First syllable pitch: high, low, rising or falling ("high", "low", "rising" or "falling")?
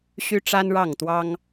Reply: high